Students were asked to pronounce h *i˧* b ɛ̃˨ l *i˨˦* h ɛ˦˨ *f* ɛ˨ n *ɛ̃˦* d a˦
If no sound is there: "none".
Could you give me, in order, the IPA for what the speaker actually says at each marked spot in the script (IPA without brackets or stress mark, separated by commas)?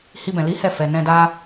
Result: i˧, i˨˦, f, ɛ̃˧